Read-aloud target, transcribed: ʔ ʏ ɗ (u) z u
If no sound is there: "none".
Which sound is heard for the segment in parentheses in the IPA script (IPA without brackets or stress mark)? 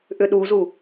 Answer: u